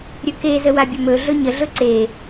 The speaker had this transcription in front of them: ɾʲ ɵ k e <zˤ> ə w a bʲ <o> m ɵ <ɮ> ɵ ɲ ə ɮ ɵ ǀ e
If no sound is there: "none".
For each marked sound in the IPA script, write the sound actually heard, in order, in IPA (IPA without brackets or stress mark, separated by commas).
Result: z, ɵ, ɮ